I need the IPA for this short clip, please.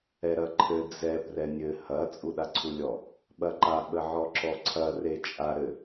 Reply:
ɛ ɾ ɐ ǃʰ ɘ d͡z ɛ p r ɛ nʲ ɘ h ɐ t͡sʼ u ɗ a ǀʰ u lʲ ɔ | ɓ ɐ ǃ a ɓ ə ʕ ɔ ǁ ɔ ǀʰ ɐ r e t͡ʃʼ a ɾ ɘ

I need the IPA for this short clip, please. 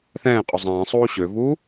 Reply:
θ ɛ̃ː qʼ ʊ zˤ ɛ̃ː sˤ uː ɕ ø v uː

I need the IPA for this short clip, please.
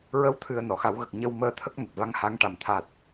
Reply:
ɹ ə˧˥ w t̪ʰ ɨ˨˩ ə̯ n ɔ˨˩˨ x a˨˩˦ w ɣ ə˨˩ k̚ ɲ ə˧ w m əː˧ t̪ʰ ə˦˥ k̚ n a˨˩ t̚ v a˧ ŋ h a˧˥ ŋ ʈ a˨˩ m t̪ʰ a˨˩ t̚

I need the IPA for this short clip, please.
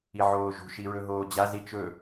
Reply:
i ʕ oː ʒ ṳ ʃ i ɹ ɵ ɦ oː d͡ʑ a z i t͡ʃ ɵ

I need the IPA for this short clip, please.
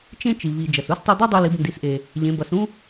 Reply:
t͡ʃ ẽ˧ t͡ʃ i˩ β i˩ d͡ʒ ʌ˩ s u˧˥ s tˤ u˧ d̪ o˥ dˤ u˧ l i˩˧ b n d i˩˧ s ʔ e˩ | ʎ ẽ˩˧ b ʌ˩˧ s ũ˥

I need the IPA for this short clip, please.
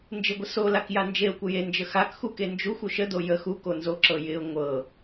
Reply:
n d͡ʒ ɪ ɡʷ ə s o l a k j a n d͡ʒ e ʊ̯ kʷ ə j e n d͡ʒ ə x a k x u k e n d͡ʒ u xʷ o ʃ ə d o j ə x u k o n z o ǁ ɤ j ɪ ʊ̯ ŋʷ ɤ

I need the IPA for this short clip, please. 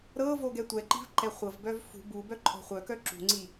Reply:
ɾ ɤ v o ɡ ɛ tʷ ɛ ǃ i̤ v ǃ ɛ χʷ ɤ v b œ v f ṳ b u b œ ǃʼ ɔ̤ χʷ œ k œ ǁ ṳ ŋ͡ǀ i

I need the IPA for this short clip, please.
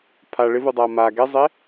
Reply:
pʰ a ɭ ɪ v u dˤ a ɐ̯ m a ɡ ɛ zˤ e

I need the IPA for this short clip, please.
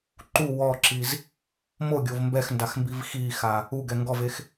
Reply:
ǃ u w ɔ ǁ i z | m o ɡʲ o v m b ɛ x n d a x m b i v x i x a | u ɡ ɛ ŋ ɡ ɔ v e x

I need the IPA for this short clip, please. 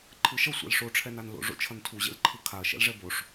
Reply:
ǃʰ ɯ ʃ ʌ sʷ ɛ̰ l ʂ o ʈ͡ʂʰ ɛ n a n l o̰ ʐ o̰ t͡ʃʰ ʌ n tʰ u ʑ ḛ l ǃʰ ɯ kʰ a ɐ̯ ʃ ɛ̰ l ʐ ɛ b o ʂ

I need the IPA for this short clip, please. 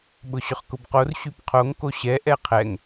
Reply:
ɓ ʊ ɕ ʏ χ k ʊ b q o r ɕ y p qʰ o ŋ k o ɕ ɛ ʔ ɛ qʰ ɛ ŋ

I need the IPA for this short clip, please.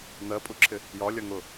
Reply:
n̪ ɜ pʼ u ǁʰ ɪ | j ɒ lʲ ʌ ŋ ʊ

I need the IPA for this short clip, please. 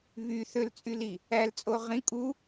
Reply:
β y θ ø l t͡sʼ y l i | æ l t͡sʼ o ʁ ĩ kʼ u

